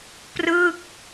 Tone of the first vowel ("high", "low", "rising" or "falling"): falling